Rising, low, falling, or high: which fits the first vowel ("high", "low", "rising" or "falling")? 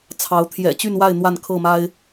rising